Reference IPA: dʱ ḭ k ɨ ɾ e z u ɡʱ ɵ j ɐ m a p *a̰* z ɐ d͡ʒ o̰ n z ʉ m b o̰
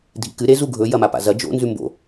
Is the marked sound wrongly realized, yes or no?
no